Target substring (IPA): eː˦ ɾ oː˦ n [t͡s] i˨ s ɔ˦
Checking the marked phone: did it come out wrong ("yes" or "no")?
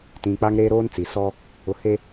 no